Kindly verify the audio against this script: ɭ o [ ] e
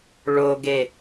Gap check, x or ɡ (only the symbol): ɡ